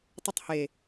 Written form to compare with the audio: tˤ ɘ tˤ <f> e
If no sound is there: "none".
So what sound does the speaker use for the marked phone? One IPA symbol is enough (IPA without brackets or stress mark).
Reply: h